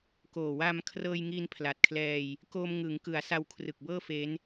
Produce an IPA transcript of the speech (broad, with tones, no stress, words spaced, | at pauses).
koː˨˩wa˧m kʰrɤː˧jŋi˧npʰla˨˩t̚kʰlɛː˧j | koː˧mŋɯ˩˦ŋkɯ˩˦a̯ sa˧wkʰrɯ˨˩k̚bɤː˥˩fe˦˥n